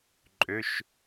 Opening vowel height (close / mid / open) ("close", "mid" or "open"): mid